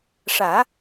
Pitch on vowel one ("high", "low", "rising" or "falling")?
low